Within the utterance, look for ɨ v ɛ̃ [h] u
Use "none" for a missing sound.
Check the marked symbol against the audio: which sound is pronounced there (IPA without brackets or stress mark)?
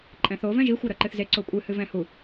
h